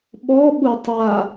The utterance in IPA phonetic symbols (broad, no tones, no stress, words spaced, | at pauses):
ɓɔɓu tˤa